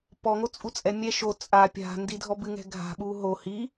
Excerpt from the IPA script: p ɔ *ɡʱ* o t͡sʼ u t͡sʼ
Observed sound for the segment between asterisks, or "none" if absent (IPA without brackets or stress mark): ŋ